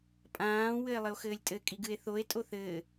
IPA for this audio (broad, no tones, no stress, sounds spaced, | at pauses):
pʼ ãː w ɘ e̯ lˠ ɘ o̯ x ɘː lʲ tʼ ɘ kʼ i ɡ ɨ e̯ θ o e̯ tʼ o θ ɘː